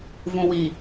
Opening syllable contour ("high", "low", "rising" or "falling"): low